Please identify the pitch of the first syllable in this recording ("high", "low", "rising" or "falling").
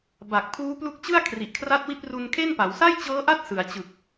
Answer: low